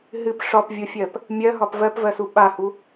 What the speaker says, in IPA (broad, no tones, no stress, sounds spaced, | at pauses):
ɦ ɨ p ʂ ɒ p vʲ o fʲ ɜ p | mʲ ɜ ɦ ɒ p v ɜ p v ɜ s u ɓ a h u